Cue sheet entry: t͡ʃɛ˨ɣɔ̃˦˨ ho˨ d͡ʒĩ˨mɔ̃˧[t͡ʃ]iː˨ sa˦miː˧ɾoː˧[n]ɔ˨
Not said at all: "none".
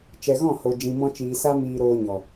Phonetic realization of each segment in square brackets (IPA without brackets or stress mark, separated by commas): t͡ʃ, ɲ